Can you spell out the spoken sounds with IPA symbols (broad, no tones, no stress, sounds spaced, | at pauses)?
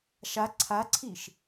ʃ a ǀʰ a ǀʰ i ʃ